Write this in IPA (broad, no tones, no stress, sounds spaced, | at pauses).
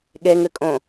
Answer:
ɠ e ŋ ɨ kʼ õ